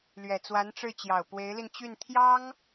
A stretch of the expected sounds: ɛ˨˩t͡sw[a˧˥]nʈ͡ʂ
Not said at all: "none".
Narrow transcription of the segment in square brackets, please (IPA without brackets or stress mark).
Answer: a˧˥